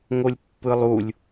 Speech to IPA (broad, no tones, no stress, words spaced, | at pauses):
ŋolʲpːɯlˠulʲ